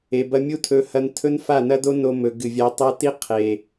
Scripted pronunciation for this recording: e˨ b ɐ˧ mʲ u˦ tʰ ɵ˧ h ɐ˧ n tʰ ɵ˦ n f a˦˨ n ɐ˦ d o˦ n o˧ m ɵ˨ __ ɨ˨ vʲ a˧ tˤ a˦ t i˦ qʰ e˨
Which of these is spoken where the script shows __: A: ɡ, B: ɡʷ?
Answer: A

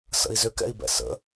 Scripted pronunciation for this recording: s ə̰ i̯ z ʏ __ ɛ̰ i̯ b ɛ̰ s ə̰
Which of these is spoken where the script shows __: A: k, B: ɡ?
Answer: A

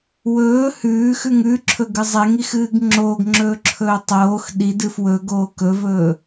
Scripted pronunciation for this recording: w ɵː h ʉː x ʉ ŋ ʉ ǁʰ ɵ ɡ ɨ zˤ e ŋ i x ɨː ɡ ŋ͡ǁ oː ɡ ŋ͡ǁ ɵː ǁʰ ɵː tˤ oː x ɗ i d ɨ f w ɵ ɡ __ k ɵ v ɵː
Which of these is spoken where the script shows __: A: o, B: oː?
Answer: B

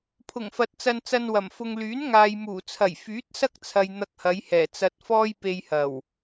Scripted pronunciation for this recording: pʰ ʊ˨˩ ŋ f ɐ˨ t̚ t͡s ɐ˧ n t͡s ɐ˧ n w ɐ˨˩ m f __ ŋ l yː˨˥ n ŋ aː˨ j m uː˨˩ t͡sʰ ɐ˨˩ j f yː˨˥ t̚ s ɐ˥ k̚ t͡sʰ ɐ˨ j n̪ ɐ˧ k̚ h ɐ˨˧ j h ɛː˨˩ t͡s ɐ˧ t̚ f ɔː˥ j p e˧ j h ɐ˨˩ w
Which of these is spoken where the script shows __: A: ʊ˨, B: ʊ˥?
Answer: A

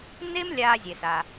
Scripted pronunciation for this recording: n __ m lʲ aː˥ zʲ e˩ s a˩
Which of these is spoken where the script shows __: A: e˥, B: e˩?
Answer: A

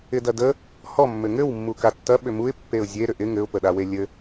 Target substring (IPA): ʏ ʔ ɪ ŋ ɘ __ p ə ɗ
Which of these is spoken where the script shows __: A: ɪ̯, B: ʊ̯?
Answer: B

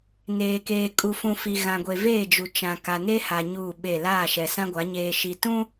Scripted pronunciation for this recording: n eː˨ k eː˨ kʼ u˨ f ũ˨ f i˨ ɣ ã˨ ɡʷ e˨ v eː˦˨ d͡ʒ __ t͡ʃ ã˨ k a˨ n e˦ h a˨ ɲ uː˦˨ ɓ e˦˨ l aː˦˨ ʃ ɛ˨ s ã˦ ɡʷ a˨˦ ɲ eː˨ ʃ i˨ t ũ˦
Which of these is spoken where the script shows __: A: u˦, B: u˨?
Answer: B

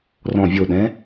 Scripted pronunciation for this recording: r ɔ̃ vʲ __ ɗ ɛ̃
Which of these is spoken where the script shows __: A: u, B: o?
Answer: B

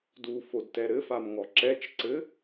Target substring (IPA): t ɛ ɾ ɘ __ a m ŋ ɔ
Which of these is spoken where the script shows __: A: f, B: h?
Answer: A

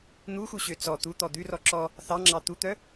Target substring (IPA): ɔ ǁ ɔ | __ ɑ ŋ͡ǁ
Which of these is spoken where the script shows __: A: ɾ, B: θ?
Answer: B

